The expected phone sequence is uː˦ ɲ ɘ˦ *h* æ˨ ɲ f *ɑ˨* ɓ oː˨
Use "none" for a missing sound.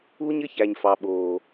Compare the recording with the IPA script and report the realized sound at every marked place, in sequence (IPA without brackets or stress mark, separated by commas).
ç, ɑ˨